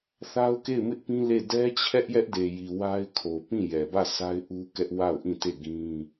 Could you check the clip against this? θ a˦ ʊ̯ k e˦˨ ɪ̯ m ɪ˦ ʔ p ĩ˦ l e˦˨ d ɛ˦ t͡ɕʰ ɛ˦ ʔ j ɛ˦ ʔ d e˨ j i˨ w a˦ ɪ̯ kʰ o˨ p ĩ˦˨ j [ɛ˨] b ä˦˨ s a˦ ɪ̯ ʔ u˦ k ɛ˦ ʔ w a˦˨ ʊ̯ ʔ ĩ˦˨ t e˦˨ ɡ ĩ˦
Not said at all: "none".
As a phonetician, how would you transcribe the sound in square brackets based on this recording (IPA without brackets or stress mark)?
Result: ɛ˨